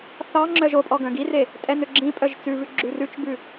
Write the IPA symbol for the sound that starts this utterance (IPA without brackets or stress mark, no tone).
θ